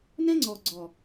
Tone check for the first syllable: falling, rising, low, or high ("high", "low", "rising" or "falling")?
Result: high